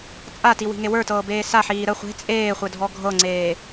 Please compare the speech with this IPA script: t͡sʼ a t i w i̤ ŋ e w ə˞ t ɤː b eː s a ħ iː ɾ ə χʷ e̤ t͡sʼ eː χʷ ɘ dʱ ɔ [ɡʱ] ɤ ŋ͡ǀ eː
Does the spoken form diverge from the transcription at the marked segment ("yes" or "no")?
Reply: no